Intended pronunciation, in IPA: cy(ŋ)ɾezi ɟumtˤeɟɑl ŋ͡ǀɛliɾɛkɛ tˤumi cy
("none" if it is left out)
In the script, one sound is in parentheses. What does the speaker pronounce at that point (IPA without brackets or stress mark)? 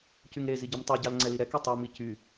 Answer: ŋ